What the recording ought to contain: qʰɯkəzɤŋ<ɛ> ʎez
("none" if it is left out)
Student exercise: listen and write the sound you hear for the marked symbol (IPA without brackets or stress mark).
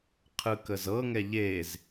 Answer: ɛ